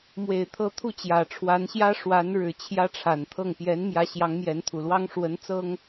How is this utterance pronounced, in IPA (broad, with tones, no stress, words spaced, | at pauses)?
mwe˨˩ɪ̯t̪ʰɤ˧˥ t̪ʰu˥˩t͡ɕjä˨˩ʈ͡ʂʰwa˧˥nɕjä˥ ʂwa˧˥n ɻɻ̩˨˩ t͡ɕʰjä˥ʈ͡ʂʰa˨˩nt̪ʰɤ˥˩ŋ pjɛ˧˥nmjä˧˥ ɕjɑ˧˥ŋmjɛ˧˥nt̪ʰu˨˩lwɑ˥ŋ ʂwə˧˥n t͡sɤ˥ŋ